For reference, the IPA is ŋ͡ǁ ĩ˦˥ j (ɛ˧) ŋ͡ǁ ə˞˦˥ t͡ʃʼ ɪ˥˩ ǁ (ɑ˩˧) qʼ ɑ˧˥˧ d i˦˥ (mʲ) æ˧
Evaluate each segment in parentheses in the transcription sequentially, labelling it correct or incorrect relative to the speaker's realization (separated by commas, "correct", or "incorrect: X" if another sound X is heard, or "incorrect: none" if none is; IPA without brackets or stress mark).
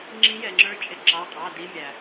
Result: correct, incorrect: ɑ˧˥˧, correct